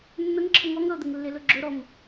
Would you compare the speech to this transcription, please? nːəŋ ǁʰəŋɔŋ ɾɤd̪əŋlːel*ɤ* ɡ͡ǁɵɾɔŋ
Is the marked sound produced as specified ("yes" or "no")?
no